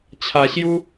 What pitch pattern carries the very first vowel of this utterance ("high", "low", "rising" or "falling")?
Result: low